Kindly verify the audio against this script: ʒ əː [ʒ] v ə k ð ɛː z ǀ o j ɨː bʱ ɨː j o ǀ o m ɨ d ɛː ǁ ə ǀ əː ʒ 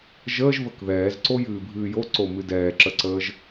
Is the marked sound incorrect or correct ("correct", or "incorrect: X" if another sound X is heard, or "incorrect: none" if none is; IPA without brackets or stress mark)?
correct